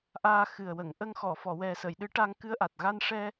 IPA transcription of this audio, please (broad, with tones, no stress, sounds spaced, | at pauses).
ʔ aː˧ x ɨ˨˩ ə̯ w ə˨˩˨ ŋ ʔ ə˧ ŋ x ɔ˨˩˨ f ɔ˨˩˨ w ɛ˨˩ s ə˨˩˨ j ɗ ɨ˧˥ ʈ a˧ ŋ k ɨ˧ ə̯ ʔ a˨˩ t̚ ɣ a˧ n ʂ ɛ˧